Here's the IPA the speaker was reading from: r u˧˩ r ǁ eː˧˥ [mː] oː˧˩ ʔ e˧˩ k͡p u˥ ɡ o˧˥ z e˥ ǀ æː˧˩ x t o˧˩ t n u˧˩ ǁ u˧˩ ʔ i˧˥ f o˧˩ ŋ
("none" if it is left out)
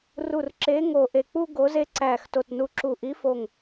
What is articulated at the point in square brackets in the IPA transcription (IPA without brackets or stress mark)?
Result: ŋ